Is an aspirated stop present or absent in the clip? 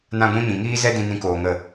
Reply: absent